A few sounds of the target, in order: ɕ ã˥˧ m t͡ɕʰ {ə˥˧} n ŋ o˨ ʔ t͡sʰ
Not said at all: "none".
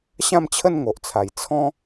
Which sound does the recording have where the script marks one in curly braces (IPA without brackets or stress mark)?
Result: ə˥˧